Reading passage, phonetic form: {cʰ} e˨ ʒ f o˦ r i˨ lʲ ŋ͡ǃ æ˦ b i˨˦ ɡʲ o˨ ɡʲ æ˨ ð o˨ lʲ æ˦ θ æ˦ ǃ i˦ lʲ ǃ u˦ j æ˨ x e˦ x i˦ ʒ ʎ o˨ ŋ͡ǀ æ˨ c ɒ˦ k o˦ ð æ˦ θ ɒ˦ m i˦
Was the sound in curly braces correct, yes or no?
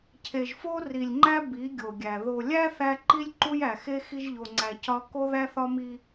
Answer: yes